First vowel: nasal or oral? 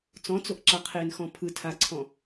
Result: nasal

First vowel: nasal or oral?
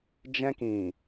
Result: nasal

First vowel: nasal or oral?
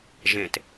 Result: nasal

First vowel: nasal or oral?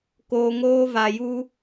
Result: oral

